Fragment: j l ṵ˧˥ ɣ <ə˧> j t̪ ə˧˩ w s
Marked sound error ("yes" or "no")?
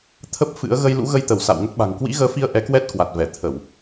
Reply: no